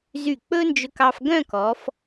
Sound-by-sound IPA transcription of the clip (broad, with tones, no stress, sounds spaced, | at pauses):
z y˧˩ k͡p ɵ˥ n d͡ʒ ɵ˧ k ɑ˧ f ɡ œ̃˥˧ k ɔ˩˧ f